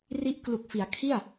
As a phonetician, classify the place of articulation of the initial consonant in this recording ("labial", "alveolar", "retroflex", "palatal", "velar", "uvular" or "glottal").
alveolar